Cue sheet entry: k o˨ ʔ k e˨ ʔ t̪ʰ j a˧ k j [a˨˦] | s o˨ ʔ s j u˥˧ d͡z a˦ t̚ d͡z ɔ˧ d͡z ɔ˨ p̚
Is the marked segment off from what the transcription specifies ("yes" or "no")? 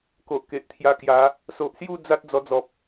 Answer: no